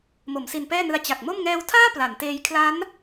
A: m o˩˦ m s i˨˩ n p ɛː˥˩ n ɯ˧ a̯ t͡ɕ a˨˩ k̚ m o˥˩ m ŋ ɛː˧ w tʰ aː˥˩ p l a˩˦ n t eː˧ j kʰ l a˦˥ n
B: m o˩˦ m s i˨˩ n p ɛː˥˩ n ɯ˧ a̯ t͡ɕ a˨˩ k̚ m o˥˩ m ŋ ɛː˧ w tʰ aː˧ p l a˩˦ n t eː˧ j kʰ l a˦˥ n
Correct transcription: A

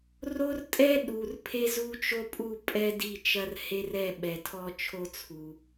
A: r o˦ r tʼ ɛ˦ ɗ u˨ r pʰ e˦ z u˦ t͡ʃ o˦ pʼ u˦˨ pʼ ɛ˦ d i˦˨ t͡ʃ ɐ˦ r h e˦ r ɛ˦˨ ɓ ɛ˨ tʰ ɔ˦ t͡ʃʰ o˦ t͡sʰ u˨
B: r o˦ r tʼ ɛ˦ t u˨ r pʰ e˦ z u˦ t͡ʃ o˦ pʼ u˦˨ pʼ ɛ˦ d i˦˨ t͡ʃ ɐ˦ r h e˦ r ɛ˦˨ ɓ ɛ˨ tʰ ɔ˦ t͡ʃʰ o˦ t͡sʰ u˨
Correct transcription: A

